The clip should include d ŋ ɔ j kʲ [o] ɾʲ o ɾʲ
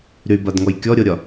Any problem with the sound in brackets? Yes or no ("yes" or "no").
yes